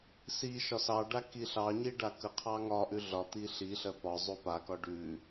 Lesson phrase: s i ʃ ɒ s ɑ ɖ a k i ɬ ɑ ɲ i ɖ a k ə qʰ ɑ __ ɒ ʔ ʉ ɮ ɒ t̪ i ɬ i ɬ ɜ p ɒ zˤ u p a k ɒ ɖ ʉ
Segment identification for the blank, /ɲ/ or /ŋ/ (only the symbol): ŋ